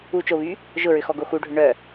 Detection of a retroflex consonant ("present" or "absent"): present